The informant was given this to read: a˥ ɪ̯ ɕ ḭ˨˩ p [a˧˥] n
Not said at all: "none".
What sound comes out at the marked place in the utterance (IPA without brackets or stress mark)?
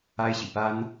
a˥